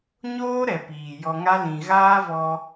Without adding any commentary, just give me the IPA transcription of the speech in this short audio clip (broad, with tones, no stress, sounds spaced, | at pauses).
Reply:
ɲ oː˦ ɾ ɛ˨ p iː˨ j ɔ˧ ŋ a˦ l ĩ˨ ɣ aː˦ v ɔ˧